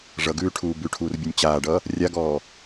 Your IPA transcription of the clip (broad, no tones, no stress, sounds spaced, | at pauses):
ʐ ʌ ɡ ʉː ʈʰ uː b ʉ ʈʰ uː r bʲ u nʲ t͡ɕ aː ɖ ʌ | rʲ a ɡ ɔː